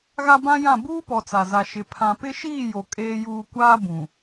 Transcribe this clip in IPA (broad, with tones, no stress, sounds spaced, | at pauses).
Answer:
ɣ a˦ b ã˦ j ã˦˨ b uː˦ p ɔ˨ t͡s a˨ z a˨ ʃ ɪ˨ pʰ ã˨ p ɪ˦ ʃ iː˦˨ j o˨ kʼ eː˨ j uː˨ kʷ aː˦ b ũ˨